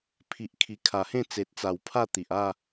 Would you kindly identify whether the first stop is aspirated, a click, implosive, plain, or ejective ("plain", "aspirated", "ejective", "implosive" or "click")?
aspirated